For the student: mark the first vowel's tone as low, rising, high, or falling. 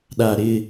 low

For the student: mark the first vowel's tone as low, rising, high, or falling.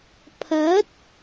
rising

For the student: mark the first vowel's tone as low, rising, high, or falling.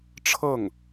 falling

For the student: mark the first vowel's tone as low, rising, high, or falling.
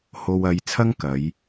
low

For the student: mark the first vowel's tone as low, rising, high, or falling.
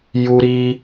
high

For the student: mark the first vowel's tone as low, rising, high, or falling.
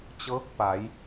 rising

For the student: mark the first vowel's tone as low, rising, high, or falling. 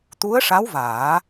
rising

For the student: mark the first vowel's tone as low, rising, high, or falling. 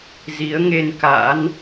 rising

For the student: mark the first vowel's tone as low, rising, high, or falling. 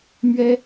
high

